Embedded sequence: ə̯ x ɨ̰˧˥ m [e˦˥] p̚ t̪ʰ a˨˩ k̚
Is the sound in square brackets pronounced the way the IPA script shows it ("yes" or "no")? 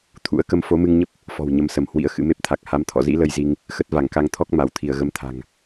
yes